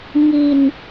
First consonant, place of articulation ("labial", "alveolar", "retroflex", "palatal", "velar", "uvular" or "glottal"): velar